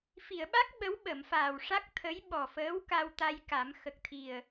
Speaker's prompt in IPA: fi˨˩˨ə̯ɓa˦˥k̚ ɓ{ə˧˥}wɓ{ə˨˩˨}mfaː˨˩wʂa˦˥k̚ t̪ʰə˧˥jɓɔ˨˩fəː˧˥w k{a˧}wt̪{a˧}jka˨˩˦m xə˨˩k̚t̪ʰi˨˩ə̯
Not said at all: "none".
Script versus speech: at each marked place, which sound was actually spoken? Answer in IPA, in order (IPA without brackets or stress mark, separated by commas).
ə˧˥, ə˨˩˨, a˧, a˧